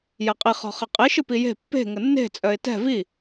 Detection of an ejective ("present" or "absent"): present